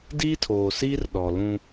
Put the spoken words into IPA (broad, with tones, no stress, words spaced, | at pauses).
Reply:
diː˦tʰoː˨siː˦r ɗɔ˨lũ˦